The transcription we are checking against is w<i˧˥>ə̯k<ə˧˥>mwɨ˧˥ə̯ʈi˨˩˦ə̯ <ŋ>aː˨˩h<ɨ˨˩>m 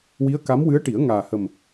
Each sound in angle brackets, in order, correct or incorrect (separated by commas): correct, incorrect, correct, incorrect